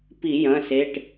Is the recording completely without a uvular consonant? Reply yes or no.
yes